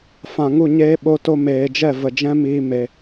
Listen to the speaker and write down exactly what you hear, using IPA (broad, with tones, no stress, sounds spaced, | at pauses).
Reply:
f ã˨ ŋ u˦˨ ɲ eː˦ ɓ o˧ t o˧ m eː˨ d͡ʒ ɛ˦˨ v ə˨ d͡ʒ ɛ̃˦ m iː˧ m e˧